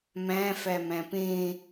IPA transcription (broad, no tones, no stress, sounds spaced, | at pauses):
m æ̃ f æ m æ̃ p ẽ